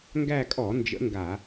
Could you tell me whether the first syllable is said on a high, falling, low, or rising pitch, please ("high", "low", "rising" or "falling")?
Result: falling